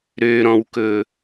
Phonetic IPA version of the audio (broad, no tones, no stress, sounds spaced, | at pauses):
ɾ ø ɾ ɔ̃ w k ɵ